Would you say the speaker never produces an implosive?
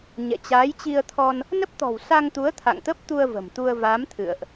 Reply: yes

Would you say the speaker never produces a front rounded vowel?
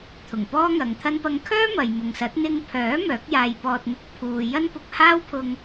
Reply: no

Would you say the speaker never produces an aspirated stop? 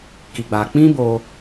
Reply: yes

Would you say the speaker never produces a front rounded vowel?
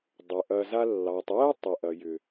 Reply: no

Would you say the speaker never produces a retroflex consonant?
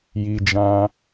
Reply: yes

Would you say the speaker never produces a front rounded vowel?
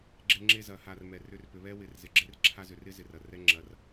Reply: no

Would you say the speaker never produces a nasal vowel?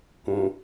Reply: no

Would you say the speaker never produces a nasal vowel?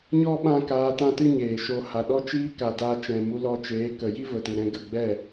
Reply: no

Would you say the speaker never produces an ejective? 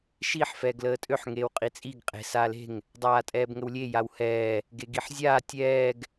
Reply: no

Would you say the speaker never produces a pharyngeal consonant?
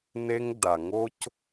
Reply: yes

